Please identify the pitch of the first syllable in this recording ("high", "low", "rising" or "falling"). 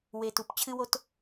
low